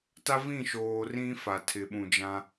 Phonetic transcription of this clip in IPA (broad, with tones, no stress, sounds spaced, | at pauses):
t a˦ v ĩ˦˨ ʃ oː˨ r ĩ˦ f a˨ tʰ ɪ˨ ɓ ũ˨ d͡ʒ ã˦